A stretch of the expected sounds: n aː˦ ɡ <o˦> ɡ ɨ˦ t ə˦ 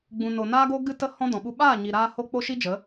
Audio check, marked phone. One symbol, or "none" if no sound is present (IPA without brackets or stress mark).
o˦